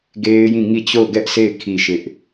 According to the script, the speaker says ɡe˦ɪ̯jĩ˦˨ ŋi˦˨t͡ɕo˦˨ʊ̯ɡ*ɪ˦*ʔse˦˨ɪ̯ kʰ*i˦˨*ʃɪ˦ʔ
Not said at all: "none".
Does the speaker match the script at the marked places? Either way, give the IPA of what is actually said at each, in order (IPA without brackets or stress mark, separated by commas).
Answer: ɛ˦, i˦˨